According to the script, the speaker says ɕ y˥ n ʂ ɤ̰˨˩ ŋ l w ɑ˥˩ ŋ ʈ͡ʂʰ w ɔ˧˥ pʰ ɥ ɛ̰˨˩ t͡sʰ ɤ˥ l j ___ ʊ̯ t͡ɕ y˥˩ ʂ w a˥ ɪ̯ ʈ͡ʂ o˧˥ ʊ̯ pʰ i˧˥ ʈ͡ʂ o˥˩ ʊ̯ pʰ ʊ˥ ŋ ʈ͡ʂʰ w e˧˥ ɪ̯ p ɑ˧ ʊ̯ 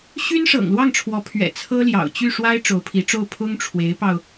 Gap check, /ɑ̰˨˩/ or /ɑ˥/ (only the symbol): ɑ̰˨˩